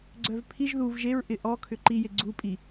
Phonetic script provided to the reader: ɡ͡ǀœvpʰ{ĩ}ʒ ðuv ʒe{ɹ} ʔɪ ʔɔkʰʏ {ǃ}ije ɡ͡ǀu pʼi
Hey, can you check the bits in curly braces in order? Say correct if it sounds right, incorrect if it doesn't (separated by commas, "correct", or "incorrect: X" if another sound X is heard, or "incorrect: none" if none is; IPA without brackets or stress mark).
incorrect: i, correct, correct